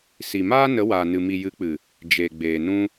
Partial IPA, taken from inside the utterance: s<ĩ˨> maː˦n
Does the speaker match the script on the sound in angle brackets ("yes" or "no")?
no